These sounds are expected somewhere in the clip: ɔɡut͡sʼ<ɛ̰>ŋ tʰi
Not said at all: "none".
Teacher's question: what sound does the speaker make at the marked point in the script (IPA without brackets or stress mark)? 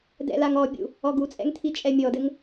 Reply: ɛ̰